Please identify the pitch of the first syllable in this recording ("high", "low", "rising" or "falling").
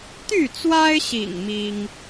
falling